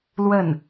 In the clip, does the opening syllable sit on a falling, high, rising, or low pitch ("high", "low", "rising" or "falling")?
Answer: falling